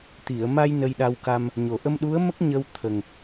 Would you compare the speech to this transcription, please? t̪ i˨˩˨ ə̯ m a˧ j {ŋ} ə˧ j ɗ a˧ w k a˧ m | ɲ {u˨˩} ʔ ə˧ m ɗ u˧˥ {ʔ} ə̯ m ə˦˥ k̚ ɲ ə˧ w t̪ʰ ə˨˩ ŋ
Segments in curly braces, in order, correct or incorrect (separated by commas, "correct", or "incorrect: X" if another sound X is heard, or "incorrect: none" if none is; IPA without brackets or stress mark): incorrect: n, incorrect: o˨˩, incorrect: none